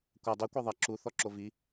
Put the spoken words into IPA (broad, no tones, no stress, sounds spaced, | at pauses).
kʷ ɐ dˤ i kʷ e ðˤ ɐ ǁ u θ ɔ ǁ o v i